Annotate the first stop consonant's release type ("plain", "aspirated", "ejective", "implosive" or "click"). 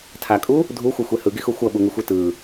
aspirated